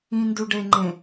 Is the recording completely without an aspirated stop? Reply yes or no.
yes